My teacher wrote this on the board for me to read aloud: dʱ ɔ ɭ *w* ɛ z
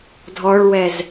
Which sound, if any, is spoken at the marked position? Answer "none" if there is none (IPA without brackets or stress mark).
w